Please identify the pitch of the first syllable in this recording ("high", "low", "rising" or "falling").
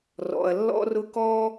low